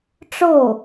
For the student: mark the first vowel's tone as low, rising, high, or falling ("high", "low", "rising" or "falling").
falling